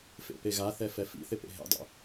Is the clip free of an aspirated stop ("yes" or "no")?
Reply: yes